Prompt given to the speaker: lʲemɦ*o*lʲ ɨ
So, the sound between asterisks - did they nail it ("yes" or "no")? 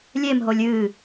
yes